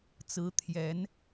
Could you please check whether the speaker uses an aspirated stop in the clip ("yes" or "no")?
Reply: yes